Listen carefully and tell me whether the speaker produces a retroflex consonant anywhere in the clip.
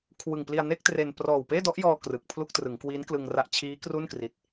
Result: no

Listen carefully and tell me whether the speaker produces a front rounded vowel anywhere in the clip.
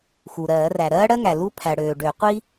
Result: yes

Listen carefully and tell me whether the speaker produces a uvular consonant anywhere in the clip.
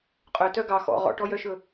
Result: yes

